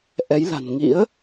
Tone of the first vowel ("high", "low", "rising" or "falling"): rising